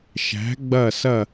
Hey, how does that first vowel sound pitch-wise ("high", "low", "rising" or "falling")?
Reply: rising